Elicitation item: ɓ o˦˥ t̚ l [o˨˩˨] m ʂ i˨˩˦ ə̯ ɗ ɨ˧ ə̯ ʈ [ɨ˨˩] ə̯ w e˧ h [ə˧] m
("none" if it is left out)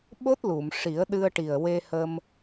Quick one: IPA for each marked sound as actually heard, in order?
u˨˩˨, i˨˩, ə˧

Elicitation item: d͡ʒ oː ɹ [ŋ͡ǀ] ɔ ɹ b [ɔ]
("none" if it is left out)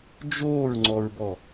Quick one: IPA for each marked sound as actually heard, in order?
ŋ͡ǀ, ɔ

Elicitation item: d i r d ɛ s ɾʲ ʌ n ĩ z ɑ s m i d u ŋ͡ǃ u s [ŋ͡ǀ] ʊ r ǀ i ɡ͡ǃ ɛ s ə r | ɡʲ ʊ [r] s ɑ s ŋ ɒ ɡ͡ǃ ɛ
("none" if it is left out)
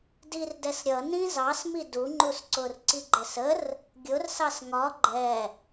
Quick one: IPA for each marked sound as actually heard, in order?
ǀ, r

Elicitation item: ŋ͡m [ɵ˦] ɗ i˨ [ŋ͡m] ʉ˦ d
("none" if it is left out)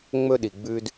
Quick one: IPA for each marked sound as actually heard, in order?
ɵ˦, ɡ͡b

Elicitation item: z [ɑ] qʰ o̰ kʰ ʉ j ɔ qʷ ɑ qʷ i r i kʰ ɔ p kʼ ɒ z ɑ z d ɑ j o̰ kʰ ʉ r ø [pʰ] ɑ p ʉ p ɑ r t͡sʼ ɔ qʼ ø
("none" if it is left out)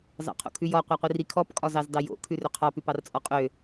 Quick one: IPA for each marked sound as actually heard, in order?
ɑ̰, qʰ

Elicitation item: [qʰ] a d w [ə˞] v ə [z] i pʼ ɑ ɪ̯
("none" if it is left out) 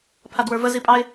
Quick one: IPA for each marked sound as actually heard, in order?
pʰ, ə˞, z

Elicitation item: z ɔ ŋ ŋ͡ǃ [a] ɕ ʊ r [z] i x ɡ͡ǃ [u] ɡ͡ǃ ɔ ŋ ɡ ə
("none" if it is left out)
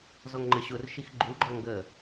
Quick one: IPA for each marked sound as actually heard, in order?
ə, ʃ, u

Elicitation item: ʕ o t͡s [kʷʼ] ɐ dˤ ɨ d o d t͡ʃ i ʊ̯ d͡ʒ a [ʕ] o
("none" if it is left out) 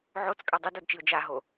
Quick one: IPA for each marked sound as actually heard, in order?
kʼ, ɦ

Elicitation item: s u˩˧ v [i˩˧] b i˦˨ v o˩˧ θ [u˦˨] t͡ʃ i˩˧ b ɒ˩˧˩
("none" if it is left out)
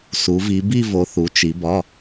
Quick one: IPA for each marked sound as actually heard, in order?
i˩˧, u˩˧

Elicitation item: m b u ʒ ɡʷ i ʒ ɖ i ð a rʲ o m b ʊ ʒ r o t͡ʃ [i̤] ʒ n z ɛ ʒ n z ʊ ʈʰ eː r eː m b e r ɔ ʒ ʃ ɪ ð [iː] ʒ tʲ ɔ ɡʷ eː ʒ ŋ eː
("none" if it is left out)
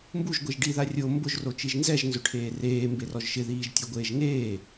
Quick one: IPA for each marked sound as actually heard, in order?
i, iː

